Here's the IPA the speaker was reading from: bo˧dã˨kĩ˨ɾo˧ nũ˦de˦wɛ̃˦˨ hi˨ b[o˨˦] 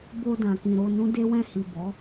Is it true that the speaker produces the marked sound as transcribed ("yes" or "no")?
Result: no